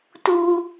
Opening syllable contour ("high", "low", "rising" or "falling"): high